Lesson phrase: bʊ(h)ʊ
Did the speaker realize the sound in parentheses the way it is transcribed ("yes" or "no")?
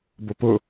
no